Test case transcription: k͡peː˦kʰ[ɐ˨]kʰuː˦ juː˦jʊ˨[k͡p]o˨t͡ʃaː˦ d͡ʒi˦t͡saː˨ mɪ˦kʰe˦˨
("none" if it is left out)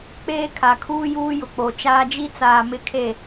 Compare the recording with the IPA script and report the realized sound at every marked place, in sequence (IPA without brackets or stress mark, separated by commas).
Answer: a˨, k͡p